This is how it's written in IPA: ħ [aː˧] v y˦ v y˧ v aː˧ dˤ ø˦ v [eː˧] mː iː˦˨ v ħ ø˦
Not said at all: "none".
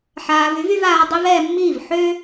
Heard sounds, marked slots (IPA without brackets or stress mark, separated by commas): aː˧, ɛː˧